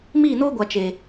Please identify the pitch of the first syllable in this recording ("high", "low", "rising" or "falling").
falling